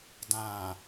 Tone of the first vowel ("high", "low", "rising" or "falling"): low